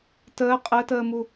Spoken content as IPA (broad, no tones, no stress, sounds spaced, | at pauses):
t əː qʼ ə t əː m u